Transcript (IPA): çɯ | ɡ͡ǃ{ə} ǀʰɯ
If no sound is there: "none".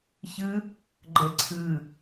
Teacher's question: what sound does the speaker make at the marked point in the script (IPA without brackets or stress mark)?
ə